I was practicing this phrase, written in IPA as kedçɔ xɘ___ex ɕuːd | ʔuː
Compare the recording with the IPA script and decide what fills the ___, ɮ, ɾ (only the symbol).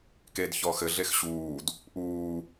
ɮ